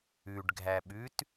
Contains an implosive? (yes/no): yes